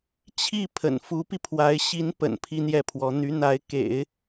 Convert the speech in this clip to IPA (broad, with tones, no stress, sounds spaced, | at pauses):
t͡ɕʰ i˥˩ pʰ ə̰˨˩ n f u˧˥ p i˧ pʰ w a˧˥ ɪ̯ ɕ i˧˥ n p ə̰˨˩ n pʰ i˥ n̪ j ɛ˥˩ pʰ w ɔ˧˥ n̪ y˧˥ n̪ a˧˥ ɪ̯ k ḛ˨˩˦ ɪ̯